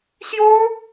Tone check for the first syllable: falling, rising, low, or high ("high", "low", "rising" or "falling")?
high